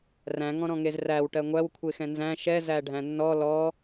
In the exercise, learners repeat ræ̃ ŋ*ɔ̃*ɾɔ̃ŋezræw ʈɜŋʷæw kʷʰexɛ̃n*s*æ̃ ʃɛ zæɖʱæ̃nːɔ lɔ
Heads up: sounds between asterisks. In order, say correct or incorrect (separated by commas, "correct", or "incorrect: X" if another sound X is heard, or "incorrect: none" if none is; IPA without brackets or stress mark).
correct, incorrect: z